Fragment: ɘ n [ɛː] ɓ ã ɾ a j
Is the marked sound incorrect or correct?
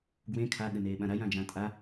incorrect